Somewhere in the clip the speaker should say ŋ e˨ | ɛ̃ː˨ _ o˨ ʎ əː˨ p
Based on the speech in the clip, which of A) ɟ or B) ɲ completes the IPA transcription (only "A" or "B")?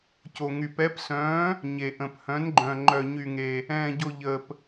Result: A